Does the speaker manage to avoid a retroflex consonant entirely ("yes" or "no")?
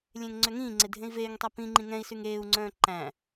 yes